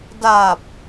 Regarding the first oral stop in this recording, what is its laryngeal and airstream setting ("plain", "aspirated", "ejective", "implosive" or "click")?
plain